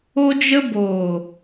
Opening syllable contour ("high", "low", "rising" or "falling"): high